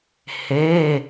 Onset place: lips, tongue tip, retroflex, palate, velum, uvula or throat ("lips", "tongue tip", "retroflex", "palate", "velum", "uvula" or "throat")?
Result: throat